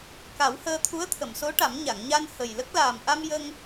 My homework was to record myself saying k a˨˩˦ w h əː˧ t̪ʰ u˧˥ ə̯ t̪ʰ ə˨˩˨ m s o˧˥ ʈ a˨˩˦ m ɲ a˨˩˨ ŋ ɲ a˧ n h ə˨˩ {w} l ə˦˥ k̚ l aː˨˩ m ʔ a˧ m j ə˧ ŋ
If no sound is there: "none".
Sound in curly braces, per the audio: j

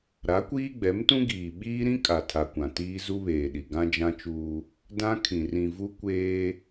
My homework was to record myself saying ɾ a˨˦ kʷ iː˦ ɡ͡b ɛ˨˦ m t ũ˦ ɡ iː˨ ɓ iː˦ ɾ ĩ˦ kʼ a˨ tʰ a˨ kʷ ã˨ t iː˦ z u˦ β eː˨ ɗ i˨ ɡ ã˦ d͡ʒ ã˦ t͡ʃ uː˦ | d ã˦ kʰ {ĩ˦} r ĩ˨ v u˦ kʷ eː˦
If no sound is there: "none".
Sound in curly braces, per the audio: ĩ˨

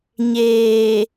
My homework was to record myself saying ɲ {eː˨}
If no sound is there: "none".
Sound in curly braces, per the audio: eː˨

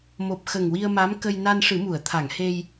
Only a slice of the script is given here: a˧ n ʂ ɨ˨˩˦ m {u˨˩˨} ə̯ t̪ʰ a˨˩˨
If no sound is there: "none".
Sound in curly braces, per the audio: u˨˩˨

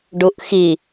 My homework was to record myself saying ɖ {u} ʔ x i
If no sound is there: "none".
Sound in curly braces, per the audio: u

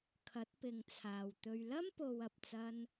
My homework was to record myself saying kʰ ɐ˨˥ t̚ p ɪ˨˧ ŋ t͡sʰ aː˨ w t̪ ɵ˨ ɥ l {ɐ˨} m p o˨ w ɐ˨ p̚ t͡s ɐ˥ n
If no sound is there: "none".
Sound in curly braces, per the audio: ɐ˥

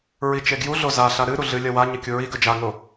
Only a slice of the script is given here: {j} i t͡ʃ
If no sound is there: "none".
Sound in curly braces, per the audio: ɹ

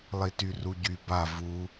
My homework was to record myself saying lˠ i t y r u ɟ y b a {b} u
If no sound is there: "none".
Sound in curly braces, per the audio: v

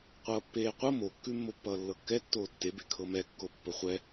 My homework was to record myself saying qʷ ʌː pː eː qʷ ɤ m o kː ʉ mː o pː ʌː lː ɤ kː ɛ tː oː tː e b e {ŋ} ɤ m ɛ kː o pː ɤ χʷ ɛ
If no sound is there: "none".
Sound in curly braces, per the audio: kʰ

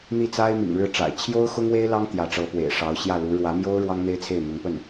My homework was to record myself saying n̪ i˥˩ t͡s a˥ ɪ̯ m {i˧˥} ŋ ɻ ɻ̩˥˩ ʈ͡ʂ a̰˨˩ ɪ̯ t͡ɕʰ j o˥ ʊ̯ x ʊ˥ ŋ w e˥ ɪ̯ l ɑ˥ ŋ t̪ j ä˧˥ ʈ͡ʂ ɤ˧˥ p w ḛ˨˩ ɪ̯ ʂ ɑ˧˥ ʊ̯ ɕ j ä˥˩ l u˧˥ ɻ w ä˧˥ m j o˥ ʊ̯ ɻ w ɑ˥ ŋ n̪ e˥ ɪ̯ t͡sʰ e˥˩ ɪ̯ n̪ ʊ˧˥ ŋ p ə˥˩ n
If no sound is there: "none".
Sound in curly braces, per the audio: ḭ˨˩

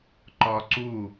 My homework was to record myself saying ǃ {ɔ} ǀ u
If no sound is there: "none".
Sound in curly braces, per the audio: ɔ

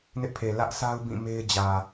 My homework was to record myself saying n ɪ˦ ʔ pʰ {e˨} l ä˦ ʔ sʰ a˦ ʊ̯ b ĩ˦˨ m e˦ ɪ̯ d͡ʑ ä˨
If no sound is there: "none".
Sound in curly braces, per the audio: e˨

